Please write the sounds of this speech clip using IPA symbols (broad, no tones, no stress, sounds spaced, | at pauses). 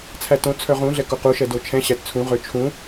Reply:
t͡sʰ æ t õ t͡sʰ œ ʁ ũ ɮ ɛ k o q u ʃ ɛ d o t͡ʃʰ ɛ̃ ɕ æ t t͡sʰ ũ ʁ ø t͡ʃʰ ũ